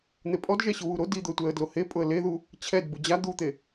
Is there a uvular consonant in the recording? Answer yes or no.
no